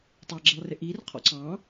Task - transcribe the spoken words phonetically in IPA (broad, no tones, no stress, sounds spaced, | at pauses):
tˤ ɑ ɡ͡ǁ ɪ lˠ r ɪ ʔ i r qʰ ɔ̰ ǀ ɑ̃